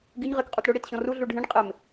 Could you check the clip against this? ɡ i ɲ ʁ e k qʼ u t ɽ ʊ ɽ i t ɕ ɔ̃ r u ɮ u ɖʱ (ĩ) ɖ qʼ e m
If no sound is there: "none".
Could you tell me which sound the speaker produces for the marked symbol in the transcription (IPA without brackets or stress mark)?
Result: ĩ